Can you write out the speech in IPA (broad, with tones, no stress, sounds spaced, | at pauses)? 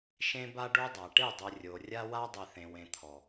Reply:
ʃ ẽ˦ b a˦ ɖ o˦ dˤ a˨ ʈ e˦˨ dˤ ɨ˨ rʲ o˨ rʲ a˦ w a˦ dˤ i˨ θ ẽ˨ w ẽ˨ t̪ʰ ɔ˨